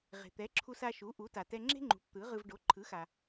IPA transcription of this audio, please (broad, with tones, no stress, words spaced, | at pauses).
ʁe̤˩t̪ɛ˩˥ǁʰu˧s a˧ʃu˩˥ ʔu˩˥ta˩ tɛ˧ŋ͡ǁe̤˥ŋ͡ǃṳ˩˥p t̪ɯ˩˥ʁɯ˧v ɖo˩˥ǃʰɯ˩˥xa˩